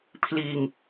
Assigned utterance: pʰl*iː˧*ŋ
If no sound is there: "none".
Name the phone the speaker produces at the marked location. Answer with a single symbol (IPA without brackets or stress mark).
iː˧